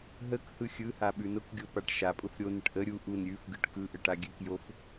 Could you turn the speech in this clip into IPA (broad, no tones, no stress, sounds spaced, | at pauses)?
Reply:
ɦ ə k h ɯ xʲ ɯ h a ɓ ʉ n ʊ k ɡʲ o p a ʈ ʃ a pʼ ʊ f ɾʲ o n ə ʈ ʔ ə ɾʲ u ʔ u n ɾʲ ʉ f ɡ ɯ ʈ k ɯ ʔ ə ʈ a ɡʲ ʉ k j o f